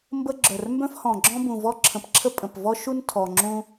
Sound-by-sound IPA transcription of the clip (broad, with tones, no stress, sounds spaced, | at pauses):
m b ə˥ ɡ͡ǁ œ˨˩ r m b œ̃˥ f h ɔ̃˨˩ ɡ͡ǁ ɔ̃˥ b ũ˨˩ v ɔ˥ ǁʰ ə̃˨˩ p ǁʰ ə˥ pʼ ə̃˨˩ p v ɔ˥ ʃ u˥ n tʰ ɔ˨˩ ŋ͡ǁ ũ˥